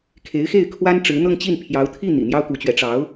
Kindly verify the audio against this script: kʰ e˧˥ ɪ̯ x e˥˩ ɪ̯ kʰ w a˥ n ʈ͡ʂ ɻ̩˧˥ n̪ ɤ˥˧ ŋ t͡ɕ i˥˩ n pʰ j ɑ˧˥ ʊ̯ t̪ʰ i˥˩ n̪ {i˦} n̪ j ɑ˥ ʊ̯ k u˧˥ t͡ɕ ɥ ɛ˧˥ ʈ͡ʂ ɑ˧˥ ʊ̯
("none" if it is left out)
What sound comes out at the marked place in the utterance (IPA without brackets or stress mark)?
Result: ḭ˨˩